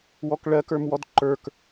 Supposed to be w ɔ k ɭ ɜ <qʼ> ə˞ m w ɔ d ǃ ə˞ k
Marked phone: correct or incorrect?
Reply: incorrect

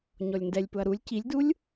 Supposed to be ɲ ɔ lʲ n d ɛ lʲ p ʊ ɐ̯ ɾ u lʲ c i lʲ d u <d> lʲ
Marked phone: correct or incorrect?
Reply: incorrect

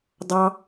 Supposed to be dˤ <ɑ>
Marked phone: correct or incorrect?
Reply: correct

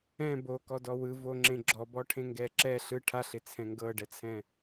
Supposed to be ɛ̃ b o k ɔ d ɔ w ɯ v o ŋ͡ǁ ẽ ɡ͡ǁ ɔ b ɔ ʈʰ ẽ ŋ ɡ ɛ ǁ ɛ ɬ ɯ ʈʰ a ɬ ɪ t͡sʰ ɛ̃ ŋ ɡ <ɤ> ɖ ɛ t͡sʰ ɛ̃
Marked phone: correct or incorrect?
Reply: correct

